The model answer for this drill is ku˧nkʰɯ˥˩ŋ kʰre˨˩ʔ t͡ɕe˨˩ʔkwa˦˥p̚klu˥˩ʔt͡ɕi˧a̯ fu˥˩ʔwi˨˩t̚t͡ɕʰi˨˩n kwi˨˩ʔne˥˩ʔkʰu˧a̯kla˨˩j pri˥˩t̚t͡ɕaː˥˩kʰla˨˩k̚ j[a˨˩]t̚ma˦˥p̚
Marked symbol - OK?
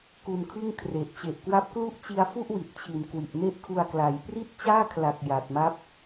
yes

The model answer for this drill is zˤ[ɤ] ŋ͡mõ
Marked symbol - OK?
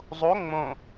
no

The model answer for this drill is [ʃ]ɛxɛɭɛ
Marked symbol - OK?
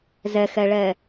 no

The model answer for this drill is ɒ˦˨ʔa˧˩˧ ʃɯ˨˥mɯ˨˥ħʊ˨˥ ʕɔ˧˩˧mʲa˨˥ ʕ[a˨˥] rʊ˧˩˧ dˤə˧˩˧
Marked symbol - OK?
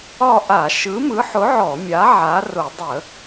yes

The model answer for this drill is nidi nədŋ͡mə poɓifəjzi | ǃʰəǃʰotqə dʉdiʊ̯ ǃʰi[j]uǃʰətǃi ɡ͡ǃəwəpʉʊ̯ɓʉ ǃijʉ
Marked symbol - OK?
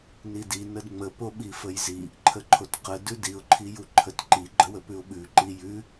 yes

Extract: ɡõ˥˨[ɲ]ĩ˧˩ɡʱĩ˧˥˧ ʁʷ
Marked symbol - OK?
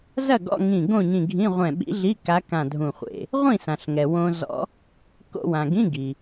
yes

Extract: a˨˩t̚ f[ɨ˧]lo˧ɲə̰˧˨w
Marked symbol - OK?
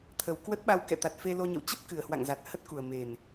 no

